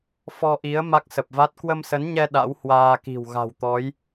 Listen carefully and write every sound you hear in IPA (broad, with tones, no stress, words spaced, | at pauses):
fɔ˧ʔi˨˦ə̯ ma˦˥k̚sə˨˩p̚va˦˥t̚ kwə˧msə˨˦nɲɛ˧ ɗa̰˧˥w hwaː˧ki̤˨˩w ɣa̤˨˩wt̪ɔ˨˦j